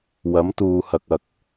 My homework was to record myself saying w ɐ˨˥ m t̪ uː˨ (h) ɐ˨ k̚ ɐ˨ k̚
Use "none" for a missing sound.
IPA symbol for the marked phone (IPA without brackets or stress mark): h